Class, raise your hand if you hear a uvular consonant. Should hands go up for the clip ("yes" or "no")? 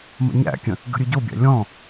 no